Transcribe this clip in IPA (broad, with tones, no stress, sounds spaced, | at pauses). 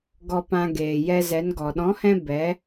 ɡ ɔ˧ p ã˧ ɡ eː˨ j ɛ˧ z ɛ˨˦ n ɡ ɔ˨ ɗ ɔ̃˨˦ h ɛ̃˧ b ɛ˨˦